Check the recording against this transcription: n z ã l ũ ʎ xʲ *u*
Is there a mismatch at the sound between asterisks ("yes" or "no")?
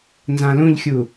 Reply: no